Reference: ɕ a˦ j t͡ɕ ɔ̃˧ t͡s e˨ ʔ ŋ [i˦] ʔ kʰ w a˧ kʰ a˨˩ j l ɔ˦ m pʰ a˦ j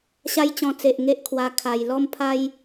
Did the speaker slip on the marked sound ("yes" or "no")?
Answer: yes